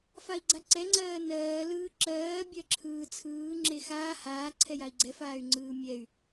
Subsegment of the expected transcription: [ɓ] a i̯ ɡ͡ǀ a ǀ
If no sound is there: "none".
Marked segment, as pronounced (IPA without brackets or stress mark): f